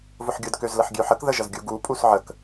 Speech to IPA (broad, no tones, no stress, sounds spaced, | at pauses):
v ʊ ħ ɡʲ ʊ d k ø z l ə ħ ɡʲ ø ħ ə k ð ə ʒ ə z ɡʲ u ɡ u pʼ u s ʕ ə k